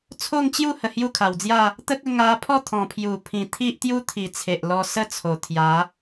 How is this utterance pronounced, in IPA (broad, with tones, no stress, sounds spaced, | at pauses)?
t͡sʰ o˥˧ ŋ t͡ɕ j u˥˧ h ə˨˩ h j u˥˧ kʰ a˨˩ w d͡z j a˥˧ | t̪ ə˦ k̚ ə˧ ŋ a˧ pʰ ɔ˥˧ t̪ʰ ɔ̃˨˩ pʰ j u˨˩ pʰ ĩ˨˩ t̪ʰ i˦ ʔ t̪ j u˦ t̪ʰ i˨˩ t͡sʰ e˨ ʔ l ɔ˧ s ə˦ t͡sʰ o˨˩ t̪ʰ j a˨˦